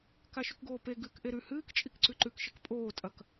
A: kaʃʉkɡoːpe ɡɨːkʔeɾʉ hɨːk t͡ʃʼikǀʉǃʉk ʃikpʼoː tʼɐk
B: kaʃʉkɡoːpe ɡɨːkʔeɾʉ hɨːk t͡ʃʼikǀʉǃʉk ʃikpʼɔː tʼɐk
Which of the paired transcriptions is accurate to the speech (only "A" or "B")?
A